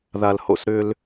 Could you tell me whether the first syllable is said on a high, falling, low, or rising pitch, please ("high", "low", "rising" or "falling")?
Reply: low